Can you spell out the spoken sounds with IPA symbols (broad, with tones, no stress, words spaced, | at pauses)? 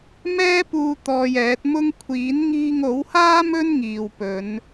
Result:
mɛː˥puː˧ t̪ɔː˧jɛː˨˥t̚mʊ˥ŋ kʷʰiː˨˥nŋiː˧ŋo˨˥whaː˥ mɵ˥nŋiː˨wpɵ˨˧n